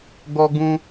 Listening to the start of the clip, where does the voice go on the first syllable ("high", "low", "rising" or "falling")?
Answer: high